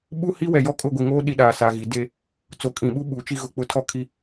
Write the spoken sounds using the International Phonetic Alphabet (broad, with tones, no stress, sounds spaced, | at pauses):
ɓ u˦ h i˦ w ɛ˨ j ɔ˦ kʼ ʊ˦˨ ɡʷ i˨ ŋ oː˦ ɗ i˦ ɗ aː˨ s a˨ ɣ i˨ d e˦ | t͡s o˨˦ kʼ ĩ˨ ɓ u˦ ɓ uː˨ t͡ʃ i˦ ɣ ʊ˦˨ k͡p ʊ˦ tʰ ɔ˦ kʰ i˦